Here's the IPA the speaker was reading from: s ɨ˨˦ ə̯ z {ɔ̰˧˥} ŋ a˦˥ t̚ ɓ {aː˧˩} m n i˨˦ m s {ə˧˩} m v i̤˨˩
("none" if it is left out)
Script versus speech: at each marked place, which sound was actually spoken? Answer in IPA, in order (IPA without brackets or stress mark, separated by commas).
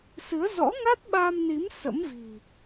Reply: ɔ̰˧˥, aː˧, ə̰˧˥